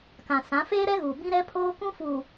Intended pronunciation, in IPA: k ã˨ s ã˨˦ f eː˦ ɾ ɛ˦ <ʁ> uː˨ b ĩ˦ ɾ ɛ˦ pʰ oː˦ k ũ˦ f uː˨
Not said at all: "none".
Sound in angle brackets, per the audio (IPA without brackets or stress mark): ɣ